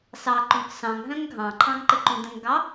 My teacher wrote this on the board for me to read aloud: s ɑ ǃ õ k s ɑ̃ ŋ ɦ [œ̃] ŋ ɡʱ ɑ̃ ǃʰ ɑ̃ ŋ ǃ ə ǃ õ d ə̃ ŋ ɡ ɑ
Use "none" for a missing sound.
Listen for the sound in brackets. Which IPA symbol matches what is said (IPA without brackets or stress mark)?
œ̃